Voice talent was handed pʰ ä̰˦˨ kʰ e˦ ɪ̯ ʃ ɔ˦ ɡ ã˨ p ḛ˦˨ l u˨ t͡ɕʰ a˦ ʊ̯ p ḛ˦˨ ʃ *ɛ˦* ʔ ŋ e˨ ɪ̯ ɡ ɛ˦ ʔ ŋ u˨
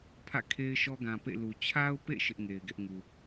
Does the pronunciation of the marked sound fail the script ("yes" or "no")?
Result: yes